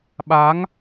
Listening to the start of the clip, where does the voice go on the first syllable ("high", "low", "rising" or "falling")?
rising